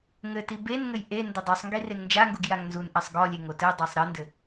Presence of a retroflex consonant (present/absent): absent